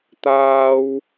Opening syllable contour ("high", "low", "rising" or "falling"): high